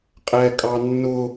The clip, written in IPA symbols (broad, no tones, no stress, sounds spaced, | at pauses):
qʼ ɛ kʼ ɑ nː ʊ